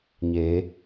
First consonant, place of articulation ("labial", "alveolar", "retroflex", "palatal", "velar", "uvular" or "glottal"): palatal